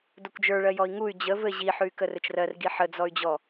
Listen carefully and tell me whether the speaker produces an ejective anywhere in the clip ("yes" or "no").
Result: no